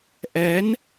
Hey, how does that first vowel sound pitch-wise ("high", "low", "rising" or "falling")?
rising